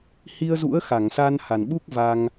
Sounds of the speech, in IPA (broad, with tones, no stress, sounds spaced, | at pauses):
h i˧ ə̯ z ṵ˧˥ ə̯ x a˧˩ ŋ s a˧ n h a˨˩ n ɓ u˦˥ k̚ v a˧ ŋ